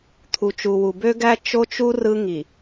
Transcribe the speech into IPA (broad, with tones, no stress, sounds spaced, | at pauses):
t̪ʰ u˨ t͡ʃ u˨ w u˨ b ø˦ ɡ æ˦ t͡ʃ o˦ t͡ʃ u˦ r ɯ˦ ŋ i˨